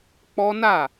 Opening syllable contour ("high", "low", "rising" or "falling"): high